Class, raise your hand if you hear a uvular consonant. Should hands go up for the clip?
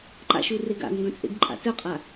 yes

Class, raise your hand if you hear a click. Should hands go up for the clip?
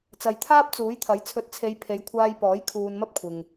no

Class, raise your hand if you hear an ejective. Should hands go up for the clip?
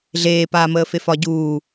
no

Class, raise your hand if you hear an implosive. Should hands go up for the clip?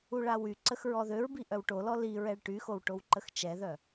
no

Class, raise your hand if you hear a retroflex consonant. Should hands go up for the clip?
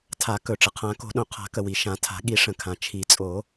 yes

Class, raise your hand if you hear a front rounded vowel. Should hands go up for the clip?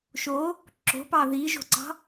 no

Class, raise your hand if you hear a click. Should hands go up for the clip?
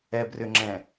yes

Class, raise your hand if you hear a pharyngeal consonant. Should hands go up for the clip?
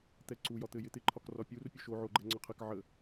yes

